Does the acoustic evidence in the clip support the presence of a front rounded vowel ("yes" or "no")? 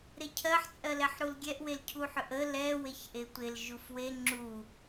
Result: yes